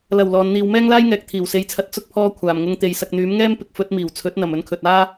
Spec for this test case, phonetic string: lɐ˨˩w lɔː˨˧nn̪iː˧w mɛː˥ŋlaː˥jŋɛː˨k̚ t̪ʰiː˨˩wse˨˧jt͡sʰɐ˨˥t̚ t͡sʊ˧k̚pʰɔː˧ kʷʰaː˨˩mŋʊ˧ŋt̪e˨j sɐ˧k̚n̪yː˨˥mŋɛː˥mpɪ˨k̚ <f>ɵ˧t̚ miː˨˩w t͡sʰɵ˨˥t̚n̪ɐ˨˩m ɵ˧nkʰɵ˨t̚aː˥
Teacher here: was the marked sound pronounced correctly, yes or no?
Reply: yes